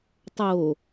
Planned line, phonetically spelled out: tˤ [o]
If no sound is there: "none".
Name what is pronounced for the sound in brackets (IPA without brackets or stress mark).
o